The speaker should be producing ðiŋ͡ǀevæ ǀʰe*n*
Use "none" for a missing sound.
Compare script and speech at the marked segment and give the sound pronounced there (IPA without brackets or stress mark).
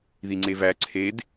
d